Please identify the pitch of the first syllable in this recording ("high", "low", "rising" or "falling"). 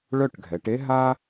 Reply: falling